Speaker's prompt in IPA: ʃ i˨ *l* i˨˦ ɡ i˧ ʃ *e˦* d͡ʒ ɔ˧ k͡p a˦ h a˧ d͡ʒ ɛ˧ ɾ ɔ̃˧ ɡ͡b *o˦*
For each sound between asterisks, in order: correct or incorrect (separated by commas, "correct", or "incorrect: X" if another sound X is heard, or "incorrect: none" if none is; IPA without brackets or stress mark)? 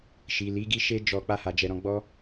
correct, correct, incorrect: ɔ˦